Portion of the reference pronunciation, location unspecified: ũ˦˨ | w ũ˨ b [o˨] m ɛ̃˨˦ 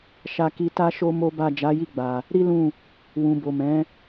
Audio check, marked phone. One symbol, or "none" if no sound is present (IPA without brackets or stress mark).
o˨